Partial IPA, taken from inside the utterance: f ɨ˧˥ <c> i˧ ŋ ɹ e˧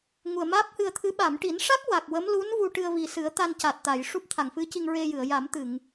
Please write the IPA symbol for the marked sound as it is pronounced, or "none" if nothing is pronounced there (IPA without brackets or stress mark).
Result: c